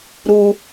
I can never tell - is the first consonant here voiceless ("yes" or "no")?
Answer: no